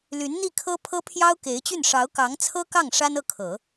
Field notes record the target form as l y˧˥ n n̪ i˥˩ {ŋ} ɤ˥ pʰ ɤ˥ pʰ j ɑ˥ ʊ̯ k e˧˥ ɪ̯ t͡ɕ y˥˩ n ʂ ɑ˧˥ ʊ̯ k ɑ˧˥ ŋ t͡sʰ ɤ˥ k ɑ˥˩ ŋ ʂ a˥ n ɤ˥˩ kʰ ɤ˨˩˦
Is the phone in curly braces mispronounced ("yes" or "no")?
yes